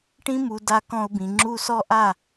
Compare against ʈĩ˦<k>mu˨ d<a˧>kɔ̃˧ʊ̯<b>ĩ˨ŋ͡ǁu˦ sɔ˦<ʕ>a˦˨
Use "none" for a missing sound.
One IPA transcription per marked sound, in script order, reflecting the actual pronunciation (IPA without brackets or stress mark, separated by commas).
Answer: none, a˧, b, ʔ